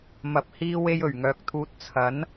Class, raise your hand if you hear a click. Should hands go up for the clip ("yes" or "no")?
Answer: no